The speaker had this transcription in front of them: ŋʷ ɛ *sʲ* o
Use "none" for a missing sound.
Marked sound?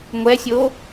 sʲ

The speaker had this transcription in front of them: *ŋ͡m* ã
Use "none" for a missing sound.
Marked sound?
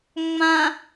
ŋ͡m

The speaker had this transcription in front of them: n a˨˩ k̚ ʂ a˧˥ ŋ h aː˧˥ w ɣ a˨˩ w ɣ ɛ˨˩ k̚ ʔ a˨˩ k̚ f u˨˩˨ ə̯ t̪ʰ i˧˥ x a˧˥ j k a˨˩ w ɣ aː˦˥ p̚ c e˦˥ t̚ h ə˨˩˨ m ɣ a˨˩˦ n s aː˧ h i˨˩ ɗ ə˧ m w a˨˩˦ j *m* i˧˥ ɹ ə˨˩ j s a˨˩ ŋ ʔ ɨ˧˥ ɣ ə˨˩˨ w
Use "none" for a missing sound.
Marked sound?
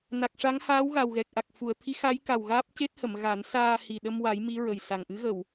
m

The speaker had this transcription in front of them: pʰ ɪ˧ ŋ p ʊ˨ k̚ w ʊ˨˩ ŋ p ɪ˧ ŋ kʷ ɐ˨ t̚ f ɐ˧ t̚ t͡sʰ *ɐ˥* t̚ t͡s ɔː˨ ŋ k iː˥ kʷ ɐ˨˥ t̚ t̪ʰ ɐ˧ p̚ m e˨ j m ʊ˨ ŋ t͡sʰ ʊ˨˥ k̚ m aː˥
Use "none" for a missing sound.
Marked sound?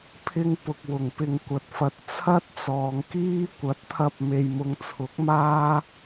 ɐ˥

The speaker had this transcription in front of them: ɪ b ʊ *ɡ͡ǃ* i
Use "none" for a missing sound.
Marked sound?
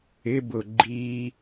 ɡ͡ǃ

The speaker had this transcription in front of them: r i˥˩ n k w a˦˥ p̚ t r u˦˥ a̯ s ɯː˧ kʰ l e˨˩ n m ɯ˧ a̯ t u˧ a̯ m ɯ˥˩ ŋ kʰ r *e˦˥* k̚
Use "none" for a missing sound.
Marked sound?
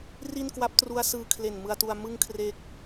e˦˥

